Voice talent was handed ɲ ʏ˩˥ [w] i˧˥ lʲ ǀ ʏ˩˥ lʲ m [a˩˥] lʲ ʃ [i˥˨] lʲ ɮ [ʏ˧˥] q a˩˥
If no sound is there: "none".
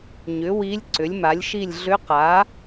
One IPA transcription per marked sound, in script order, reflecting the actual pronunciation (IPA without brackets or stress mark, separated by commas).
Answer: w, a˩˥, i˥˨, ʏ˧˥